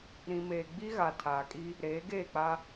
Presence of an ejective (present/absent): present